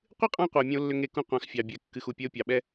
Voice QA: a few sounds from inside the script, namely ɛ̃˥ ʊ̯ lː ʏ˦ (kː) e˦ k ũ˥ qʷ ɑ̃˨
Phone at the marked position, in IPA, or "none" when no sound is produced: ŋ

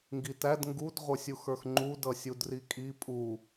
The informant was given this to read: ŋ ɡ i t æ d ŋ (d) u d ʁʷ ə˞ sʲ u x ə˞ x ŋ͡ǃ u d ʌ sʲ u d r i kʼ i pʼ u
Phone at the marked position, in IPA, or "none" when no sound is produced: ɡ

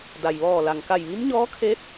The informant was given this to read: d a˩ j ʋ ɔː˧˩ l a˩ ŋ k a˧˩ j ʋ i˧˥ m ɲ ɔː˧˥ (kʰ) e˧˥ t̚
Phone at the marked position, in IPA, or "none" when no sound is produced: kʰ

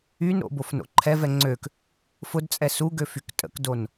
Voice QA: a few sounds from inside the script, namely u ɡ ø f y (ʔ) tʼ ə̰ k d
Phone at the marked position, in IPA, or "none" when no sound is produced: k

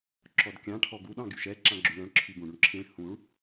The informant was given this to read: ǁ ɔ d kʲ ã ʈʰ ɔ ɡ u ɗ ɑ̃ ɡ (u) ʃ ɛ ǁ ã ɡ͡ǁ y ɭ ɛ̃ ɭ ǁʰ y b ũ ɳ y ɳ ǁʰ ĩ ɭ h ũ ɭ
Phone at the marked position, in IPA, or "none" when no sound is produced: y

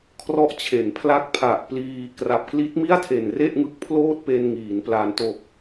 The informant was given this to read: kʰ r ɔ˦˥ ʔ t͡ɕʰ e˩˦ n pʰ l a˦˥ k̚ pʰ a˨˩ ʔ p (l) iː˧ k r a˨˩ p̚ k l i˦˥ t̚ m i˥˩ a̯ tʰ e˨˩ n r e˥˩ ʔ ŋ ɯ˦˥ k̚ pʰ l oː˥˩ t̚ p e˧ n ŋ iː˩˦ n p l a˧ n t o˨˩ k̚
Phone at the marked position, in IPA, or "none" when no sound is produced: l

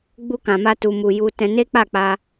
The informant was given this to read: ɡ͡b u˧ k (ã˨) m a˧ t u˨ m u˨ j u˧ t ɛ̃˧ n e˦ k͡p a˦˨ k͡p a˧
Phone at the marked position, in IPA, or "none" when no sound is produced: ã˨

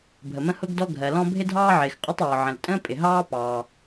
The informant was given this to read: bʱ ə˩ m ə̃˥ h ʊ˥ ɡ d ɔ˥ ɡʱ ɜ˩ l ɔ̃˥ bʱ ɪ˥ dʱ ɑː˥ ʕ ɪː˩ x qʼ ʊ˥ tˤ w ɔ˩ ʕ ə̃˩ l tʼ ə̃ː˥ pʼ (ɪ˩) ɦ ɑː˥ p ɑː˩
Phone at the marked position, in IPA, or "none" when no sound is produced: ɪ˩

